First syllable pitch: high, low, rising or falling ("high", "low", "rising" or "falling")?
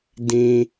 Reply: high